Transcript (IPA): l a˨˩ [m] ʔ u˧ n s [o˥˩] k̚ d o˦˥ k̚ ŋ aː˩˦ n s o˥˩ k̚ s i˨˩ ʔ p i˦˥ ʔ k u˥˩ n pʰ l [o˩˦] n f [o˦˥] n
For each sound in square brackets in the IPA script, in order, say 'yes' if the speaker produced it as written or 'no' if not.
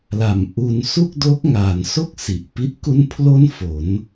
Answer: yes, no, no, no

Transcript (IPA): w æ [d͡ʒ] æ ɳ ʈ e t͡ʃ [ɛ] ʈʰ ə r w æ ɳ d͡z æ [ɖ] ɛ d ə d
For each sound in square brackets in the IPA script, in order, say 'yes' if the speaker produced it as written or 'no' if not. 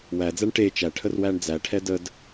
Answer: no, no, no

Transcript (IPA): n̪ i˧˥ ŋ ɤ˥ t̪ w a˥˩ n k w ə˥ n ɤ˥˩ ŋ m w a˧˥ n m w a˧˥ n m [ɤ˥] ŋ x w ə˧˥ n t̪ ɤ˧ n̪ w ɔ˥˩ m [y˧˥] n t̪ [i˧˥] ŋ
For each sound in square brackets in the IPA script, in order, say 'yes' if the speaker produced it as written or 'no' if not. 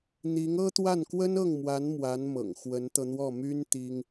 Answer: no, no, no

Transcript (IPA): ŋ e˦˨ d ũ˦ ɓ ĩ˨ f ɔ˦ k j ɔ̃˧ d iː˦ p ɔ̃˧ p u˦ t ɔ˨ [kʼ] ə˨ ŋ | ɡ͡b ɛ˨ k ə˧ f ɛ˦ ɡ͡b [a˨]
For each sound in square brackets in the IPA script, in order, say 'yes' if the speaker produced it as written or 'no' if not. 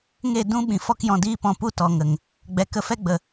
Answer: no, no

